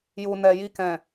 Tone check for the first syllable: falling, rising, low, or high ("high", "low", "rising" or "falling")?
low